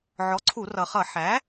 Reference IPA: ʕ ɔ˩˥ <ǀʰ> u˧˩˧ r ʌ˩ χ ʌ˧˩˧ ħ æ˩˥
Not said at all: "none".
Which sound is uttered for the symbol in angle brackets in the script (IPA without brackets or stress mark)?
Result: ǀʰ